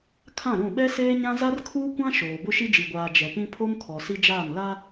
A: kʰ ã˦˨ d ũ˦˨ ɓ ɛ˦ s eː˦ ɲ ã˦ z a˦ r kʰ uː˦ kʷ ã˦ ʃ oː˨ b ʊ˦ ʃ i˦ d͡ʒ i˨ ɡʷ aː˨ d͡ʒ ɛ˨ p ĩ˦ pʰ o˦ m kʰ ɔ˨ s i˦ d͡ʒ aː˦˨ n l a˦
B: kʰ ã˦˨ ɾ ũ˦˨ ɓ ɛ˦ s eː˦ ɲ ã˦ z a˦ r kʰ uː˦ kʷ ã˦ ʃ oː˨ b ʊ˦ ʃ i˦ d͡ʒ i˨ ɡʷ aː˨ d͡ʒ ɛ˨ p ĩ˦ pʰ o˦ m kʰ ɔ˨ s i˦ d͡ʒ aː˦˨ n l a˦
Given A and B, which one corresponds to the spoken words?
B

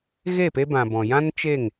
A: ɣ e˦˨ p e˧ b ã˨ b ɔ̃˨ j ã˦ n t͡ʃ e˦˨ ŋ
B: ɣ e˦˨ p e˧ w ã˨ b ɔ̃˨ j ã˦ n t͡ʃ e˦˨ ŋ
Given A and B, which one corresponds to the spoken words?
A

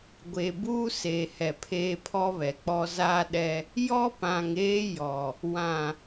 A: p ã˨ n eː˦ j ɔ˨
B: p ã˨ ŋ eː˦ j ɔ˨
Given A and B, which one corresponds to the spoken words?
B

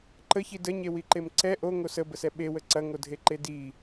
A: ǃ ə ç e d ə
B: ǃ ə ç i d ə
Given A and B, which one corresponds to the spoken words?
B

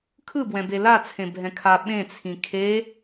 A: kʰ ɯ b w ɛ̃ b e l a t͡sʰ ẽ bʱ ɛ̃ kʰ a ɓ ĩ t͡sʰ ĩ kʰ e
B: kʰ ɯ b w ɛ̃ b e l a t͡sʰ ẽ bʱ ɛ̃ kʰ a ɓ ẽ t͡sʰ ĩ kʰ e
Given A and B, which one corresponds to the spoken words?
B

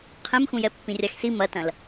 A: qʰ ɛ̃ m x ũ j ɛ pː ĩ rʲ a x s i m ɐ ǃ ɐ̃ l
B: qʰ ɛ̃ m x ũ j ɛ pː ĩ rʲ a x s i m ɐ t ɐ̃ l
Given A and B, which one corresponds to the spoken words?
B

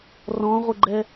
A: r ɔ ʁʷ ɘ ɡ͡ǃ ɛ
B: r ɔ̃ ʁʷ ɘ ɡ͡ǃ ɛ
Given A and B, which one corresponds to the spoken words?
B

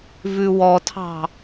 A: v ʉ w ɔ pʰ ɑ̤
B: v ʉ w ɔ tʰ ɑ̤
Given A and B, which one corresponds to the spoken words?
B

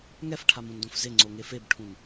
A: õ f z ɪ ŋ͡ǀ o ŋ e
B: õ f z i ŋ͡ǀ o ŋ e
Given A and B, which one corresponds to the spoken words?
A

